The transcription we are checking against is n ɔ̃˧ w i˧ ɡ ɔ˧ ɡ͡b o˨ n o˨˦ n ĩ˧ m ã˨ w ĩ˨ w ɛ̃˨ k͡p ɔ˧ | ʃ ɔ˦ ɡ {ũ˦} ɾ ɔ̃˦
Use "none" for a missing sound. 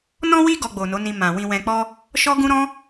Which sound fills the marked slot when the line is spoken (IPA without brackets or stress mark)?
ũ˦